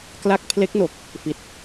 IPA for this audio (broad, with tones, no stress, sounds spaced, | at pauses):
k l a˦˥ k̚ pʰ l e˦˥ k̚ n o˨˩ k̚ | f i˨˩ t̚